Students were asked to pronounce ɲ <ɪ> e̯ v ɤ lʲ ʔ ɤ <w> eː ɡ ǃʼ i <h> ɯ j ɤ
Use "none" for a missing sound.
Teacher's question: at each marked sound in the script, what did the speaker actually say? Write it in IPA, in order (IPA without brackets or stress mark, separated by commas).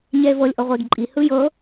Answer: ɛ, ʁʷ, h